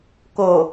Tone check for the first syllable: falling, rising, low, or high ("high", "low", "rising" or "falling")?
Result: low